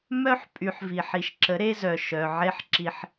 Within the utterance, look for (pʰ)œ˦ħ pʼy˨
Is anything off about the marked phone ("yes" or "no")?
yes